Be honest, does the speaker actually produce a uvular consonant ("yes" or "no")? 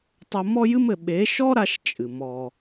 no